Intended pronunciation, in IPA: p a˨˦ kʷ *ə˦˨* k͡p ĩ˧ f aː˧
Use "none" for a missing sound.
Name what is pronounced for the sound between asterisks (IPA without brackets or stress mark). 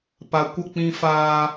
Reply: ə˦˨